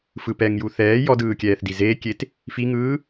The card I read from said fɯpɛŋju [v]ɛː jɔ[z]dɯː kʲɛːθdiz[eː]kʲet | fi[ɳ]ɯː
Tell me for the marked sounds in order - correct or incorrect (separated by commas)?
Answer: incorrect, incorrect, correct, incorrect